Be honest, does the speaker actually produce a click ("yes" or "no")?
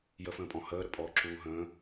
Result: yes